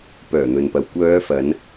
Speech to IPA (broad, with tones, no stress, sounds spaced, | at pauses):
p œː˨˩ n̪ ɵ˨ n p ɐ˨ w kʷ œː˨˧ f ɐ˨˧ n